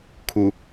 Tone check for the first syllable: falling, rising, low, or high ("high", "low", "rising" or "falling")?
low